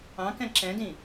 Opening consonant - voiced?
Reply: no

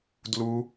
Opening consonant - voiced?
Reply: yes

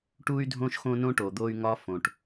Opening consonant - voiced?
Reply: no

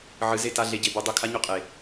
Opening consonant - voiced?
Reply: yes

